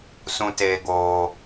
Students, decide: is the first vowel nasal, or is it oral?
nasal